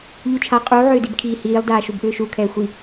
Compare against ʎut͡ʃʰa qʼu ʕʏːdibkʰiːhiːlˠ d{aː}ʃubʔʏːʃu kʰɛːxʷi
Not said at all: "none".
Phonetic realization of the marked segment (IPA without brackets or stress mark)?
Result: aː